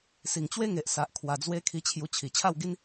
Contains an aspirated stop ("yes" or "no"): yes